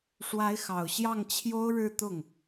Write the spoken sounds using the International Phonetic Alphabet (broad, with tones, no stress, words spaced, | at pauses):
ʂwa˧˥ɪ̯xɑ˨˩ʊ̯ ɕjɑ˥˩ŋ t͡ɕʰjo˥ʊ̯ɻɻ̩˥˧ t̪ʊ˥˩ŋ